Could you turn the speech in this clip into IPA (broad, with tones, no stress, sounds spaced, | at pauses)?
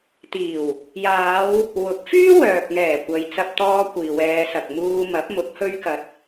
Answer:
t̪ iː˨˩ w | j aː˨˧ w | w ʊ˨˥ k̚ f yː˥ w œː˨ k̚ ŋ ɛː˨˩ kʷ ɐ˨ j t͡s ɐ˧ p̚ t̪ ɔː˧ kʷ iː˨ w ɛː˨˧ s ɐ˨ k̚ m uː˧ m ɐ˨˥ p̚ m ʊ˨˥ k̚ h ɵ˧ ɥ k ɐ˨ t̚